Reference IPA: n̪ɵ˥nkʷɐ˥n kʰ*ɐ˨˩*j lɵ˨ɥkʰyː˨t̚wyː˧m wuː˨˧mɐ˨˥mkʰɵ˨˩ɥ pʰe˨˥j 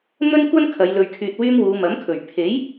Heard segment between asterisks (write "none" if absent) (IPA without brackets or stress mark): ɐ˨˧